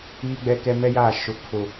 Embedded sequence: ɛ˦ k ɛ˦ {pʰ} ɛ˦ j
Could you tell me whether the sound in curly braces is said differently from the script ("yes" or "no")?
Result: yes